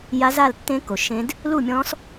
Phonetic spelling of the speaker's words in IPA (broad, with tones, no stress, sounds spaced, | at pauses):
j a˦˥ z a˥˧ l tː ẽ˦˥ k o˨ ʃ ẽ˦˥ d | l u˥˧ mʲ ɔ̃˦˥ s